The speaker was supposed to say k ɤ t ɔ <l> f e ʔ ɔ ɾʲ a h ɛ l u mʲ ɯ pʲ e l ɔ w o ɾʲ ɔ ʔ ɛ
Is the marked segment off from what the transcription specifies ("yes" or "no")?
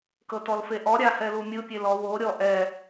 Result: no